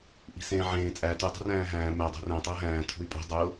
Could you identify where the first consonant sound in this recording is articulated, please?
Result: glottal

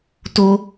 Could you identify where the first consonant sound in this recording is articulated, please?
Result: alveolar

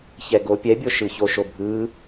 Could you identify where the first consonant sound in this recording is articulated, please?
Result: palatal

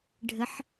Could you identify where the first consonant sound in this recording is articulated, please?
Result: retroflex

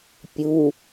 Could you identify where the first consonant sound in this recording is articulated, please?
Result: labial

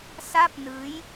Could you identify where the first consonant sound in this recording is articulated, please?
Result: alveolar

